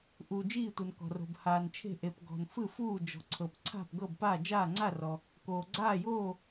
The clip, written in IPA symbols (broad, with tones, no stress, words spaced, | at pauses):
ʔuː˩d͡ʒiː˧˩tʷɤ˩n kɔ̤˩ro̤˩b haː˩nt͡ʃʰe̤˧˩ʔe˩p ɡɔ̤˩n fɯ˧˩fuː˧˩ d͡ʒɔ̤˩ǀʰɤ˩p ǀʰa̤˧˩pɡɤ˧˩bpa˧˩ d͡ʒaː˧˩ŋ͡ǀa˧˩rɔ˩ | koː˩ɡ͡ǀaː˧˩joː˧˩